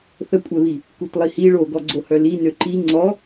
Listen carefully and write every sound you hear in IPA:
θəkʷʼɛβi | kutlˠihi ɭoɡɔɡ͡ǀohœ li nøǃi ŋ͡ǀɔ

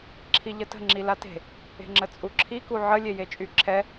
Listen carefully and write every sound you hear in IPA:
ǁʰiʎətə̤ ŋ͡ǁilate̤ | e̤ŋ͡ǁət͡sʼuǁʰi kuʕə lʲejet͡ʃʼyǁʰɛ

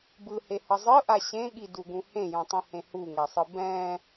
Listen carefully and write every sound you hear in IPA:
bɯhehʌ zˤɯʔa ɕẽɠiduɡũ hẽjũtˤĩhẽ huŋɛsˤɯ bɛ̃

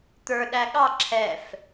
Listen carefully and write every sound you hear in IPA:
t̪ə˞ ɗæɠɑ ǁʰɛf

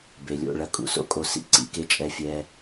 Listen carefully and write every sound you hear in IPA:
be˨lʲo̰˦˨ɭɐ˧ kʼṵ˧so̰˦kʼo˧sḭ˦ ǀḭ˨˦ke˧t͡ʃʼɛ˧ fʲɛ˧

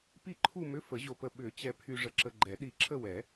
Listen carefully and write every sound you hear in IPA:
pi˥˧ǃʰu˥˧mʏ˧˥˧ fə˨˩˦ʑo˧pə˧ ɓʏ˨˩˦ t͡ɕɛ˧pʰy˧ ʐə˧ǁə˧ɡ͡ǃɛ˨˩˦ ɗi˧ǁʰə˥˧wɛ˨˩˦

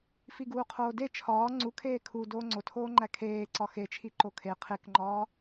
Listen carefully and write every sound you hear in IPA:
fiɡuːqʰoːde t͡ʃʰɒː ŋ͡ǀu kʰeːkʰu doːŋ͡ǀotʰoːŋ͡ǃæ kʰeːǀɒ xet͡ʃʰi ǃokʰe qʰekŋ͡ǃɒː

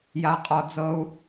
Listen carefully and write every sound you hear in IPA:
ja˥qʼɔ˥ d͡zɤ˥u̯

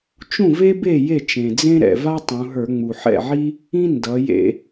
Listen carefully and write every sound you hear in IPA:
t͡ʃũ˥˩ve˥be˥˩ je˥˩ t͡ʃẽ˩d͡zẽ˥ ɾɛ̰˩va˥ tˤũ˩˧ɦə˞˧˩˧ŋ͡mu˩ ħɛ̰˥˩ʕi˥ | ĩ˥ ndʌ˩˧jḛ˧˩˧

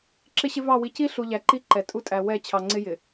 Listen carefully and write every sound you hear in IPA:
ǁɪ˦ɕɪ˦vɑ˦˨ wi˨ci˦ɬu˨ ʎæ˨ǃi˦ǃɛ˨ tʼu˦tʼæ˨ wɛ˦˨ t͡ɕʰɑ˨ŋ͡ǀɪ˦ jɪ˨

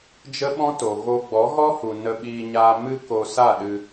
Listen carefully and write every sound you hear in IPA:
d͡ʒə˦ɓɔ̃˦to˨ ɣo˧ ɡ͡bɔ˨˦ɣɔ˦hu˨ nə˧ɓiː˧ɲaː˧ mɨ˦ko˧sa˦˨ ɗɨ˧

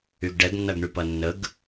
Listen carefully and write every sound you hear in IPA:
yɡɖɛɡnːɐɡɳy pɐnːəɡ

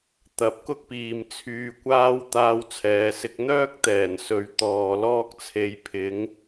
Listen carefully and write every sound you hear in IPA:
t̪ɐ˨˥p̚kʊ˥k̚piː˨m t͡sʰyː˨˧kʷaː˥w t̪aː˥wt͡sʰɛː˨˧sɪ˥k̚ n̪œː˥k̚t̪ɛː˨˩n sɵ˨˧ɥ t̪ɔː˨lɔː˥k̚t͡sʰe˧jpʰɪ˨˥ŋ

